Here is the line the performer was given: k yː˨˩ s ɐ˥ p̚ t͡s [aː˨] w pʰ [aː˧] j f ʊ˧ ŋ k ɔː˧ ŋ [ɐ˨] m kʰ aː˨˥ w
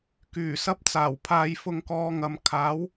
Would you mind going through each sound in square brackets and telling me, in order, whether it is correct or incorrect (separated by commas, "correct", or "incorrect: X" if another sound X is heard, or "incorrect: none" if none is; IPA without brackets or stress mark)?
incorrect: aː˨˩, correct, correct